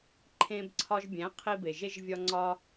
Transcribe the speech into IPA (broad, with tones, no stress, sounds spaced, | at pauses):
ǃʰ ẽ˧ b ǀʰ ɒ˧ ʒ bʲ æ̃˨˦ qʰ i˧ b e˨ ʒ e˧ ʒ vʲ ɒ˧ ŋ͡ǀ ɒ˧